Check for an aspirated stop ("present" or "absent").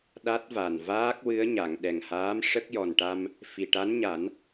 absent